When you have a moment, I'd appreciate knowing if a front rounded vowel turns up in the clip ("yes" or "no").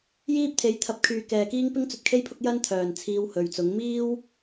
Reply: yes